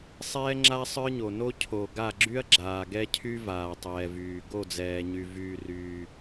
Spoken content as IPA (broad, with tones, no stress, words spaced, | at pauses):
sˤɛː˥ŋ͡ǁa˥ sˤə˞˥ɲo˨no˥ cʰo˨ ɡa˥˨ɡ͡ǁy˥ɐ̯ ɡ͡ǁaː˨ɡɛ˥cʰy˥ vaː˨tˤɛː˨vyː˨ ɡo˥˨d͡zɛː˨ɲy˨ vyː˨ryː˨